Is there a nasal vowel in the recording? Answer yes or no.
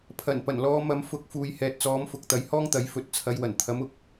no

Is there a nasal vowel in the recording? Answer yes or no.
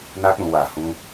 yes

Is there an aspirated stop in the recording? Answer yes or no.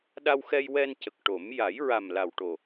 no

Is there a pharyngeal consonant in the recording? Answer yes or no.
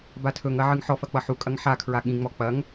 yes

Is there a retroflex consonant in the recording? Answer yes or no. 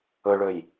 yes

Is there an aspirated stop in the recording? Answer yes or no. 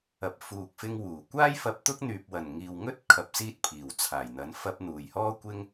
yes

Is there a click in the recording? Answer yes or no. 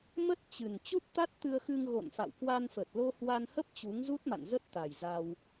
no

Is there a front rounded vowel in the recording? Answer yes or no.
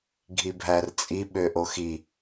yes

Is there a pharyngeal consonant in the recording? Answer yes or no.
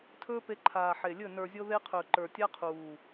yes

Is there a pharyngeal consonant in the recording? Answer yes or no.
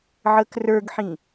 yes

